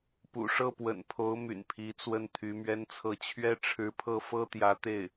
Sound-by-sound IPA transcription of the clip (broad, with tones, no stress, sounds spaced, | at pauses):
p ṵ˨˩ ʂ ɤ˥˩ p w ə̰˨˩ n pʰ o˧˥ ʊ̯ m y̰˨˩ n pʰ i˧˥ t͡s w ə˥˩ n t̪ʰ y˧˥ m ɥ ɛ˥ n t͡sʰ ɤ˥˩ t͡ɕʰ ɥ ɛ˥ ʈ͡ʂʰ ɻ̩˧˥ pʰ ɤ˥˩ f ɤ˥ t̪ j ä˧˥ t̪ e˥˩ ɪ̯